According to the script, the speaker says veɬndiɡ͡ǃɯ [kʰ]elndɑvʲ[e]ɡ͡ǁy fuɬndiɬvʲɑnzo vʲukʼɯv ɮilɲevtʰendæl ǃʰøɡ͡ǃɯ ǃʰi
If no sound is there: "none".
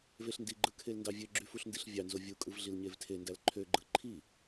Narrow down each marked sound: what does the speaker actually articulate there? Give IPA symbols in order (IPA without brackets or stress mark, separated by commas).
kʰ, ø